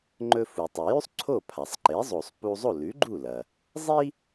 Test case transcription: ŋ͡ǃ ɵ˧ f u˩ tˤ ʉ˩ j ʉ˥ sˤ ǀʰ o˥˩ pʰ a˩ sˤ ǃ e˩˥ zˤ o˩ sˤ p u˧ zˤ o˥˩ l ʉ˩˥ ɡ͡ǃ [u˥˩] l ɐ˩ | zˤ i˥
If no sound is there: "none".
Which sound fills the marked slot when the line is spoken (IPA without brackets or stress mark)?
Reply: u˥˩